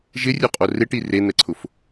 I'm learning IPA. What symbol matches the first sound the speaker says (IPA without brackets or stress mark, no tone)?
ʒ